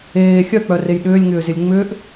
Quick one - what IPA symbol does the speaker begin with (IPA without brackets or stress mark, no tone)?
eː